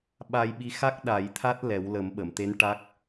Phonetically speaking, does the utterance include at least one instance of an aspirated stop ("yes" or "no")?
yes